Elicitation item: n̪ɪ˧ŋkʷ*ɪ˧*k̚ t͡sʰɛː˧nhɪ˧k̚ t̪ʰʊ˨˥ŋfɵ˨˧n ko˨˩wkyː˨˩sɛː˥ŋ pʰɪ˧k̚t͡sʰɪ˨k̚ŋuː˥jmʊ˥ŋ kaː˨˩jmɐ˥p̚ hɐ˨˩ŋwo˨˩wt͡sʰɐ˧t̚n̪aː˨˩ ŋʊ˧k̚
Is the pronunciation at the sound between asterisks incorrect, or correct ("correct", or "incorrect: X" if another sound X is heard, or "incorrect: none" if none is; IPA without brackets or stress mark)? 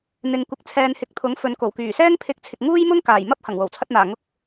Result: correct